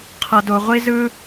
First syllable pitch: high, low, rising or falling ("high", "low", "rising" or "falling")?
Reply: high